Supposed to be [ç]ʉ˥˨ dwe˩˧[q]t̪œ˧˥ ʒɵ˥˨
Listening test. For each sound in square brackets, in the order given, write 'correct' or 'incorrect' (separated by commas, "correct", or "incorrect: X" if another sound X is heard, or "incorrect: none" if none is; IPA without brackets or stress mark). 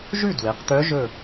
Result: incorrect: ʒ, correct